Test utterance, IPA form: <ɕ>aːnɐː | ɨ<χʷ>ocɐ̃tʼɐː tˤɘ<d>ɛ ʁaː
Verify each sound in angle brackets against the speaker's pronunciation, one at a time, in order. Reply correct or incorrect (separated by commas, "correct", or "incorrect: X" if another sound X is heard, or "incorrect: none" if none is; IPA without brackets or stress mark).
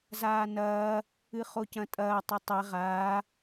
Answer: incorrect: z, incorrect: χ, incorrect: tˤ